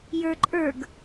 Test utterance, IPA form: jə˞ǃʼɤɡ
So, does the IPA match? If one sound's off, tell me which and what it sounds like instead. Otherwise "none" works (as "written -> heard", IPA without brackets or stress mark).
ɤ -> ə˞